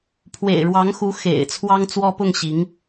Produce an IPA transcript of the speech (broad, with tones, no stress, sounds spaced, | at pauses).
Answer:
pʰ w ḛ˨˩ ɪ̯ ɻ w ɑ˧˥ ŋ x u˧˥ x ḛ˨˩ ɪ̯ t͡sʰ w ɑ˥ ŋ t͡s w ɔ˥ p ʊ˥˩ ŋ ɕ i˧˥ ŋ